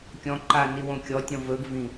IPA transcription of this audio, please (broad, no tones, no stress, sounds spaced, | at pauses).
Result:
kʲ ɔ̃ ǃ a n i w õ kʲ ɔ tʲ ɔ̃ v ɵ ɡ v ĩ